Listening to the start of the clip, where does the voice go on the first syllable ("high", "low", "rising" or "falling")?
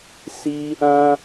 high